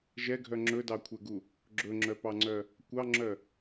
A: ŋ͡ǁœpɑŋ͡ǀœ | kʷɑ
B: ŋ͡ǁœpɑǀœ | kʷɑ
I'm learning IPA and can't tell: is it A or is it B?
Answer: A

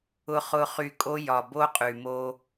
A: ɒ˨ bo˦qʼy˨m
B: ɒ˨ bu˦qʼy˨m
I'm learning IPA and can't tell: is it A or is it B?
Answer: A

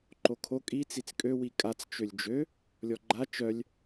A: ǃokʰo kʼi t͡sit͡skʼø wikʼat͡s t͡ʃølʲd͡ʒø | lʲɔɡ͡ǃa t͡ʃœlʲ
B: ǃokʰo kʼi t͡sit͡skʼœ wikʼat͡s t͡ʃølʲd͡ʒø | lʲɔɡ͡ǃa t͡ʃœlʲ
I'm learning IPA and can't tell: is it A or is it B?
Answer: A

